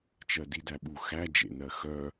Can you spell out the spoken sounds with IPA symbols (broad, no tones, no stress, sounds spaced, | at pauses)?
t͡ʃ ɜ d i d æ ɓ u x æ d͡ʒ ḛ n ɜ x œ